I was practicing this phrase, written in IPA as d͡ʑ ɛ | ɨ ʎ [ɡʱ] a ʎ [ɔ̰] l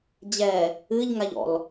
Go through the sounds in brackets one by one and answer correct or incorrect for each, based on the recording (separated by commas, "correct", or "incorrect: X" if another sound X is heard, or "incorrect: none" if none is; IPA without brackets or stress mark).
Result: incorrect: ŋ, correct